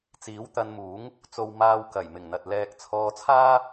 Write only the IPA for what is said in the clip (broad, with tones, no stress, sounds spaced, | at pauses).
t͡s iː˨˥ w t̪ ɐ˧ n m uː˨˥ ŋ | t͡s o˨ w m aː˧ w k ɐ˨˩ j m ɪ˨˩ ŋ n̪ ɐ˨ t̚ l ɛː˧ k̚ t͡sʰ ɔː˧ t͡sʰ aː˥